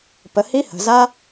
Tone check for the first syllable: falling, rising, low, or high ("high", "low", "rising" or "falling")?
low